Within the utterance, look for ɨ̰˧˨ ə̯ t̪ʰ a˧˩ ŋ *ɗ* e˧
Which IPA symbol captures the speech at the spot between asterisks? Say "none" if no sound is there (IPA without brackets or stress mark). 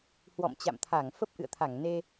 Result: n